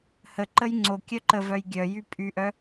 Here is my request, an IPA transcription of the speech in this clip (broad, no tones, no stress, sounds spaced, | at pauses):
h ə ǃ ə j ŋ͡ǀ o kʲ œ ǃ ə v œ j ɡʲ œ j y pʼ y ʔ œ